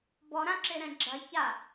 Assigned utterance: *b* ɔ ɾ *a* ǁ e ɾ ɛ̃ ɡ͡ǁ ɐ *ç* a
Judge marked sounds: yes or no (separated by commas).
yes, no, yes